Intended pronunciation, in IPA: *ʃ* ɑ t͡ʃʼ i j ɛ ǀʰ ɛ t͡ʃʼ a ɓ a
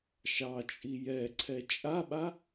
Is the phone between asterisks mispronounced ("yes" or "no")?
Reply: no